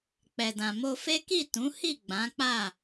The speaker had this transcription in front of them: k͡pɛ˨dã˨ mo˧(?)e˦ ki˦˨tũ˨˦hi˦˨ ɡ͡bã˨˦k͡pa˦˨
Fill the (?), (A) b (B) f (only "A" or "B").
B